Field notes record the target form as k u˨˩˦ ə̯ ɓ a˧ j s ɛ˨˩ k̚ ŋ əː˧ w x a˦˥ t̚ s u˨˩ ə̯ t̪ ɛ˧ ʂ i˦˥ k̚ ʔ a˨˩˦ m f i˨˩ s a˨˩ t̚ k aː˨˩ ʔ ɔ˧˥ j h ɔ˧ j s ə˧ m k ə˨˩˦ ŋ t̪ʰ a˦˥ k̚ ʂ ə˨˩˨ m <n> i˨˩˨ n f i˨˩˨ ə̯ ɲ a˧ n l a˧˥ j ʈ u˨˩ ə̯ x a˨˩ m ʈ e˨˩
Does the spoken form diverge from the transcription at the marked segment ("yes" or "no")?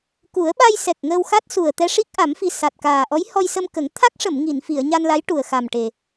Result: yes